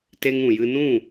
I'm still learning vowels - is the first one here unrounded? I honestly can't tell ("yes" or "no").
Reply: yes